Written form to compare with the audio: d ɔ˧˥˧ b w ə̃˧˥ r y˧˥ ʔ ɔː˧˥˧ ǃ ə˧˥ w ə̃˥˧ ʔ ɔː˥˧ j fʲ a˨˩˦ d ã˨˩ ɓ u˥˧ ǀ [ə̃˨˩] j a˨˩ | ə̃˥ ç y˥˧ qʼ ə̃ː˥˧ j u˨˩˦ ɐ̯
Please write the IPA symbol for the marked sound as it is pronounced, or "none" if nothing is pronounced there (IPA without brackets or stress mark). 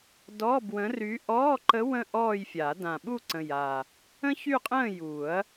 ə̃˨˩